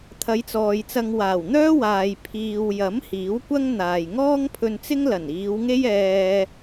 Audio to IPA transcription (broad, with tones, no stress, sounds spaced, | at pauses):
t̪ʰ ɐ˨˧ j t͡s ɔː˨ j t͡s ɐ˧ ŋ w aː˨˩ w n̪ œː˥ w aː˨ j pʰ iː˨ w j ɐ˨˥ m h iː˨˥ w kʷ ɐ˥ ŋ n̪ aː˨ j ŋ ɔː˥ ŋ pʰ ɵ˧ n t͡s ɪ˥ ŋ l ɐ˨˩ n iː˨˧ w ŋ e˥ j ɛː˧